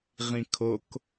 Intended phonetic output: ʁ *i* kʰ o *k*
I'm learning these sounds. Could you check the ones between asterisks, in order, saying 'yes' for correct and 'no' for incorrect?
no, yes

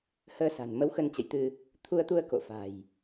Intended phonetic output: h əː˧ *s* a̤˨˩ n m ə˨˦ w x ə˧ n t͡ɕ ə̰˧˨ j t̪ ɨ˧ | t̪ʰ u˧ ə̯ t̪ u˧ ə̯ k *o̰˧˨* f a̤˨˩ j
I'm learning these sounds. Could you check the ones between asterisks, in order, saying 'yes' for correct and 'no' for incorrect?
yes, yes

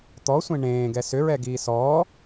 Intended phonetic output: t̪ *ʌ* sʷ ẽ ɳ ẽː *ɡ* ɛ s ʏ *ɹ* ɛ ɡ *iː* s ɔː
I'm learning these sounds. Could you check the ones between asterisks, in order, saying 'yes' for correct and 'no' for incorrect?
no, yes, yes, yes

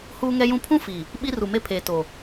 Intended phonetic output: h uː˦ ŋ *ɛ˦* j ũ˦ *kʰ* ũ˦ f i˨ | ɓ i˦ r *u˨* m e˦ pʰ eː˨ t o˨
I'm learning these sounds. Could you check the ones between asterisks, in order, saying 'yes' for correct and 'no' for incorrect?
yes, no, yes

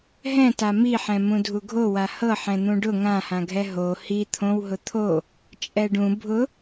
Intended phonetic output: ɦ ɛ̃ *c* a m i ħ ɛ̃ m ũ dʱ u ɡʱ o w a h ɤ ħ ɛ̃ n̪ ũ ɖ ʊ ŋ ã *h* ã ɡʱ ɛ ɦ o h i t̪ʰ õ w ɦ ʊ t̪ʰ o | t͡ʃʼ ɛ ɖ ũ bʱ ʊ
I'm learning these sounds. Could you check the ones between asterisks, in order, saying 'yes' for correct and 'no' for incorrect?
no, yes

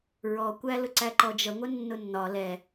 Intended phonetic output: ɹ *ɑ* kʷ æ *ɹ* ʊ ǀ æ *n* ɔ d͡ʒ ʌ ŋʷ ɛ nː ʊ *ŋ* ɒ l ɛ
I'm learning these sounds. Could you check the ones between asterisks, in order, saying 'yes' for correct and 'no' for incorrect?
no, no, no, no

